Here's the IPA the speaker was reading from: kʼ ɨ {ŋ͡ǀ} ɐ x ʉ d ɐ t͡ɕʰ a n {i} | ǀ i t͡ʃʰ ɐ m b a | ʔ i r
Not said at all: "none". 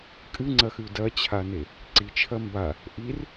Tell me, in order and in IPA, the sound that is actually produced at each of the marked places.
ŋ͡ǀ, e

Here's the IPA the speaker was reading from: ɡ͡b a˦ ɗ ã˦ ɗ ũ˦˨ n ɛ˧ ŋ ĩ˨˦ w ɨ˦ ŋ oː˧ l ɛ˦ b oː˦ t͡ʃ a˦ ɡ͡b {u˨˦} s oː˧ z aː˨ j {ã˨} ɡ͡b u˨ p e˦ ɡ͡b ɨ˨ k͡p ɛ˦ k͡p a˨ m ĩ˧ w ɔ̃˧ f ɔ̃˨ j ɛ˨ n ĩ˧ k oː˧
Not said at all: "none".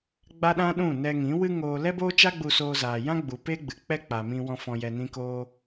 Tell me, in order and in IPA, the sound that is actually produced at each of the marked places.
u˧, ã˦

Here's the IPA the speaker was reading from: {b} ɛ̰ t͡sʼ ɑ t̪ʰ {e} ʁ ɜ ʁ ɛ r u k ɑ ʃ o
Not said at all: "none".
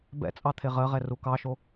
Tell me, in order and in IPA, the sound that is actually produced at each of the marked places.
b, e

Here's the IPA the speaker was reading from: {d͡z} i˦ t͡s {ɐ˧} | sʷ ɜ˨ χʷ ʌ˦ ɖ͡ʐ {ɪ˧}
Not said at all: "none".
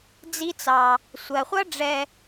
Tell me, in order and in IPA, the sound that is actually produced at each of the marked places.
d͡z, ɑ˧, ɛ˧

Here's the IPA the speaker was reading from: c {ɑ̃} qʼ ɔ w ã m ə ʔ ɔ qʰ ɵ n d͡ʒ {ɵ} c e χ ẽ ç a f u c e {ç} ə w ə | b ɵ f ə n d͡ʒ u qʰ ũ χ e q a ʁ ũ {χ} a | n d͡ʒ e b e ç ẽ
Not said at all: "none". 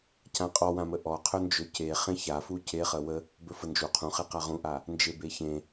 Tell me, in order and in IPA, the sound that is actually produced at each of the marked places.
ã, ɵ, χ, ʔ

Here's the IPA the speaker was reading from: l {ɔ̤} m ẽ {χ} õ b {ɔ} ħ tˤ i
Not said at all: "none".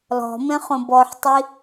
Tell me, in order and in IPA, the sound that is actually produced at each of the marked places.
ɔ̤, χ, ɔ

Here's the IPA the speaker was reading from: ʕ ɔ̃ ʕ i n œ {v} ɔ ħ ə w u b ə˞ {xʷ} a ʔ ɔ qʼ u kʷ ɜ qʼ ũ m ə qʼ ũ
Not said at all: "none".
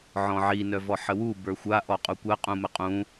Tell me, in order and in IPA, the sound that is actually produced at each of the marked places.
v, xʷ

